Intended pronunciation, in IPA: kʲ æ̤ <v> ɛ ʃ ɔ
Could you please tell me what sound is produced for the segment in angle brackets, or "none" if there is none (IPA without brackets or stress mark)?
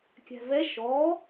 v